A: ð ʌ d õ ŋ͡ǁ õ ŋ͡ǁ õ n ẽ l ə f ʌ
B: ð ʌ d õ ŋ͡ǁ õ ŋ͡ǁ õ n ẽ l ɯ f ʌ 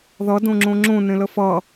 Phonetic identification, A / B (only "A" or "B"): A